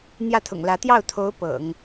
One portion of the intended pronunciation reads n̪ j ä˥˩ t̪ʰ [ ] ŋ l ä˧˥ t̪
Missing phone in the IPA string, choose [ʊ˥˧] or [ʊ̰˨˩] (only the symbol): ʊ̰˨˩